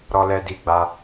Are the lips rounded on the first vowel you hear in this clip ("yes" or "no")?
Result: yes